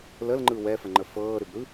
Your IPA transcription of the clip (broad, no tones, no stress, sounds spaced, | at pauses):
l ə l ŋ͡ǃ ɯ w ɛ f ə ŋ͡ǃ ə f ɤː ɾ ʏ b ɾ ɯ